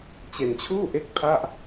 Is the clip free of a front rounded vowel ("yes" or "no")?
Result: yes